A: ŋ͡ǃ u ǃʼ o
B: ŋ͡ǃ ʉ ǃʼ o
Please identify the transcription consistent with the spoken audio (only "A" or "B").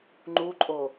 A